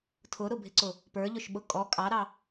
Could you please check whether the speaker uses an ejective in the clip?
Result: yes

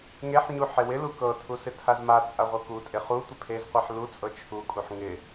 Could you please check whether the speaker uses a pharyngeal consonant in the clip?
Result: yes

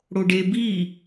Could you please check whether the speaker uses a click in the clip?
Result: no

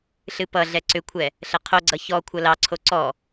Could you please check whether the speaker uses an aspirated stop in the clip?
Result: yes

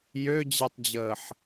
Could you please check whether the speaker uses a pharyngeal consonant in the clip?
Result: yes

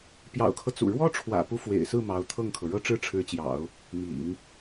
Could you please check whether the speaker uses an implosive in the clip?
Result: no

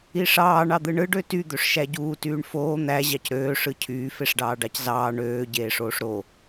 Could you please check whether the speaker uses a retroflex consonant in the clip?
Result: yes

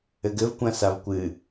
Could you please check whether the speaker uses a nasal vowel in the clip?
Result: yes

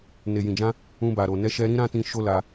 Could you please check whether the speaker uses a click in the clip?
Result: no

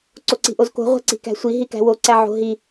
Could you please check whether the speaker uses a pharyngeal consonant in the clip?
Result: yes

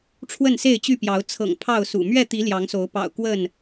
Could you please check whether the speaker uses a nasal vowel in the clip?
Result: no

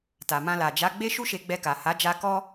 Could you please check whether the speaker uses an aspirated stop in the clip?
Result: no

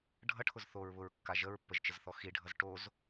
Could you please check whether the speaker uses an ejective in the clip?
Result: no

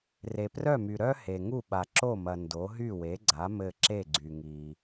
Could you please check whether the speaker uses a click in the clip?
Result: yes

